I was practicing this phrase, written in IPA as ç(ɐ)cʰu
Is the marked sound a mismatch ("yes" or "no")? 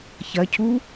no